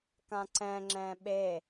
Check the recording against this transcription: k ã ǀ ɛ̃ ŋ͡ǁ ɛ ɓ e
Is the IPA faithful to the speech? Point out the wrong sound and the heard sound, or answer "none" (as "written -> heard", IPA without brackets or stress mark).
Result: ɛ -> ɛ̃